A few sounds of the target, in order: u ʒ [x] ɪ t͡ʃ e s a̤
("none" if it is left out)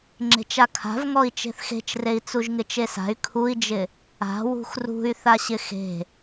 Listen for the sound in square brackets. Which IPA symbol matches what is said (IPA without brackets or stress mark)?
ŋ